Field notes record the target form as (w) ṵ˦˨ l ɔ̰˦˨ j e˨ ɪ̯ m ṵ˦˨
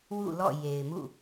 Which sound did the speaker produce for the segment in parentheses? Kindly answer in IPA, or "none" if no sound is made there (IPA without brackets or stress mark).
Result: w